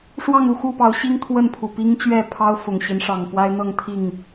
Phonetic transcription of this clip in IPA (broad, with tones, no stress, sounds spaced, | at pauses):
ʂ w ɑ˥˨ ŋ u˥˨ x u˥˨ p ɑ˨˦ ʊ̯ ɕ i˦ ŋ t̪ʰ w ə˥˨ n pʰ u˨˩ p i˦ ŋ t͡ɕ ɥ ɛ˥˨ pʰ ɑ˦ ʊ̯ f ʊ˨˩ ŋ ɕ i˨˦ n ʂ ɑ˨˩ ŋ p w a˦ ɪ̯ n̪ ɤ˥˨ ŋ t̪ʰ i˥˨ ŋ